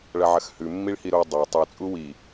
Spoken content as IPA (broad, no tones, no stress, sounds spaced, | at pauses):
ɭ ɐ ʕ ɐ x h ʉ mː i ɭ h i ɾ o dˤ a tˤ ɨ t͡sʼ u w i